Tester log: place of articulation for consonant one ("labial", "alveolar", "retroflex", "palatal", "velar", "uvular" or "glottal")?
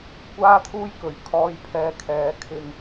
velar